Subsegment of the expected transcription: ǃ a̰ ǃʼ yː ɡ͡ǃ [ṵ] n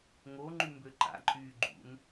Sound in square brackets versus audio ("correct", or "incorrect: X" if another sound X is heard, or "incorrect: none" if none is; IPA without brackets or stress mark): correct